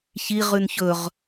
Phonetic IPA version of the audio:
ç i ʁ ʉ n ç ɵ ʁ

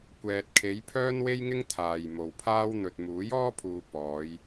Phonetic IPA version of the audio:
kʷ ɛː˨ t̚ kʰ e˨˧ j pʰ œː˥ n w e˥ j ŋ ɪ˥ ŋ t̪ʰ aː˨ j m o˨ w pʰ aː˥ w n̪ ɵ˨ t̚ m uː˨˥ j ɔː˥ pʰ uː˨ p ɔː˨˧ j

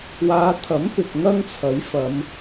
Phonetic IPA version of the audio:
w aː˨˧ t̪ʰ ɐ˨˥ m p ɪ˨ k̚ ŋ ɐ˥ ŋ t͡sʰ ɐ˨˥ j f ɐ˨˧ m

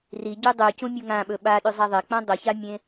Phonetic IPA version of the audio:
r i ɟ ʉ dˤ ʉ c ũ mʲ o ŋ ã ɓ ɵ ɓ a ɗ ʉ zˤ a ðˤ e k͡p ã dˤ o ç a mʲ ẽ

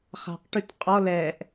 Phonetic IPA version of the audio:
χ a̤ q ʈ ʉ t qʼ ɔ l ɛ ʔ

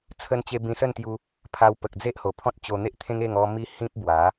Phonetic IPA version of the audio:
t͡sʰ ə˧ n t͡ɕ e˧ b ĩ˧ s ə˥˧ n t̪ j u˧ | pʰ a˧ w p ə˨ k̚ d͡z e˦ ʔ h o˨˩ pʰ ɔ̃˦ t̚ t͡ɕ o˧ n̪ e˦ ʔ t̪ʰ ẽ˦ ŋ e˥˧ ŋ ɔ˧ m i˦ h ĩ˦ p̚ b w a˨˦

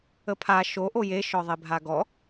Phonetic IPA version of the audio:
ə pʰ a ʃ o ʔ o j e ʃ ɔ ðˤ e bʱ a ɡ ɔ

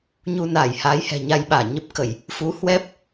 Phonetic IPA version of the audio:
ɲ u˧ n aː˧˩ j h aː˨˦ j h ɛ̤˨˩ ɲ a˧ j ɓ aː˧˩ ɲ ə˦˥ p̚ k ə˧˩˨ j | f u˨˦ h w ɛ˦˥ p̚

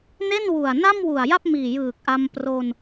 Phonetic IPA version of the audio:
n e˥˩ n w u˨˩ a̯ n a˥˩ m w u˨˩ a̯ j a˥˩ p̚ m iː˨˩ j ɯː˨˩ k̚ ʔ a˧ m p r o˧ n

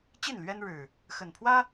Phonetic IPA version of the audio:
t͡ɕ i˥˨ n l ɥ ɛ˦ n ɻ ɻ̩˨˩ | x ə˨˩ n pʰ w ä˦

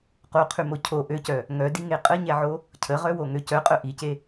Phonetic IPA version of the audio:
q o qʰ ʉ m o cʰ o ʔ ø c œ | ŋ œ d i ŋ e qʼ ə ɲ ɛ ʕ o | cʰ ə ʁ œ w o ŋ ø c œ qʼ œ ʔ i c e

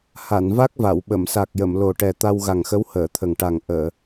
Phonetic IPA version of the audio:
h a˨˩˨ n v a˦˥ k̚ v a˨˩˨ w ɓ ə˨˩˨ m s a˨˩ k̚ j ə˨˩˨ m l o˨˩ ʈ ɛ˨˩ t̪ a˧ w ɣ a˨˩ ŋ x ə˧˥ w h əː˨˩˨ t̪ʰ ə˨˩ ŋ ʈ a˨˩ ŋ ʔ əː˨˩˨

